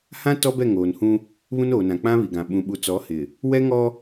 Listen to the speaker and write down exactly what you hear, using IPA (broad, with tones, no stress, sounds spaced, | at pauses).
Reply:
h ã˦ t ɔ˦ b ɛ˦˨ ŋ oː˨ n h ũ˦ | β ũ˦ n oː˨ n ã˨ k͡p ã˦ β i˨ ɡ ã˨ ɓ ũ˨ ɓ u˨ t͡s ɔ˨˦ h ɪ˨ | w ɛ˦ ŋ ɔ˦